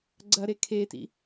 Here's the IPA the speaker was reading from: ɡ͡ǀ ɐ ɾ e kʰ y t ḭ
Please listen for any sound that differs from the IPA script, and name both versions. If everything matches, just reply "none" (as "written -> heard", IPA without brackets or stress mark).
y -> e